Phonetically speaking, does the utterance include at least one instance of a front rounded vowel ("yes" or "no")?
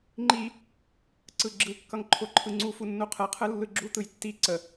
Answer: no